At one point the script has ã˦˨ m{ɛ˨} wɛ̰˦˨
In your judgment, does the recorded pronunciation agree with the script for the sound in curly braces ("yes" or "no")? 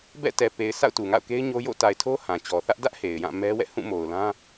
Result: no